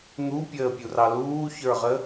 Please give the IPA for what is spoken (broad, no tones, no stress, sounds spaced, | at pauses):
n̪ u pʲ əː pʲ u r ɑ l uː ç ə˞ ʁ ə